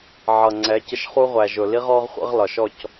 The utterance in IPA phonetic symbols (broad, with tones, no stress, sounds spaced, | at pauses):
ʕ ʌ˨ ŋ͡ǀ ɛ˨˦ c ə˧ ʃ χ u˦ ʁʷ æ˨ ʒ ʊ˨ l i˦ ʁ ɔ˦ ʁ χʷ ə̰˦ ʁ l ɒ˨ ʃ ɔ˦˨ c